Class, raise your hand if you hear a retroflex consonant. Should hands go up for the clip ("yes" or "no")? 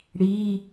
yes